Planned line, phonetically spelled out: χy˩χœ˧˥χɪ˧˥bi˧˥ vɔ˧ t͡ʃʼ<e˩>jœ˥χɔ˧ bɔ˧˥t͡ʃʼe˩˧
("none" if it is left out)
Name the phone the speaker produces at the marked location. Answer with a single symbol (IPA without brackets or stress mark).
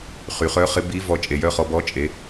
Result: e˩